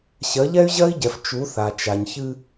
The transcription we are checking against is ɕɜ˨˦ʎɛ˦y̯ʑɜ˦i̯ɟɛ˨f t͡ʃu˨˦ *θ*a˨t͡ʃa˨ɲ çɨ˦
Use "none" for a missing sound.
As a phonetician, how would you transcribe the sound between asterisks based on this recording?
θ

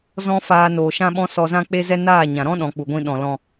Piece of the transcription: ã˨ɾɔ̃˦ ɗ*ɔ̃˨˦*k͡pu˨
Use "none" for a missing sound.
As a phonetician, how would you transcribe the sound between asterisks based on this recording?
ɔ̃˨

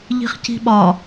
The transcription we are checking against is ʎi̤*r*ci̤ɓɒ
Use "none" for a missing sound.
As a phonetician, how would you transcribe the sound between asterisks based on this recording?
χ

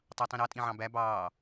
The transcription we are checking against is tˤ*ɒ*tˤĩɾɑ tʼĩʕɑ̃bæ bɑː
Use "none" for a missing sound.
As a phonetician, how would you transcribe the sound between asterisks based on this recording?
ɑ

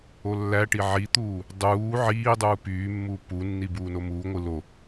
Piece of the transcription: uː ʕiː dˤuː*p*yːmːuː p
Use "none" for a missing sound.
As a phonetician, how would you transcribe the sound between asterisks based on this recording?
p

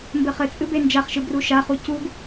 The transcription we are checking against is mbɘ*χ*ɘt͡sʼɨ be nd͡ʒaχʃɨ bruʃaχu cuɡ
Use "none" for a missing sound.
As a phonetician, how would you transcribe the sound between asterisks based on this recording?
χ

